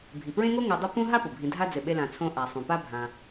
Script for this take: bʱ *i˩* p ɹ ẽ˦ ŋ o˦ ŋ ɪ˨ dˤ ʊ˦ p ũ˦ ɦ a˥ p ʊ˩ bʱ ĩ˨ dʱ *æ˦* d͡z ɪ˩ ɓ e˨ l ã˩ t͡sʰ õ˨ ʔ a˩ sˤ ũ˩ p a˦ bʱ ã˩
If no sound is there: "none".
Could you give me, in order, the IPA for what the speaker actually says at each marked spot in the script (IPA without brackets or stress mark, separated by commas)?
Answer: i˩, a˦